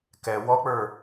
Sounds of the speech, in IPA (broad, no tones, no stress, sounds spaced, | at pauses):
k ɛ w ɔ k͡p ə˞